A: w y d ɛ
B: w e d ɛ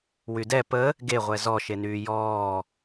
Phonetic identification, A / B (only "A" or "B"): A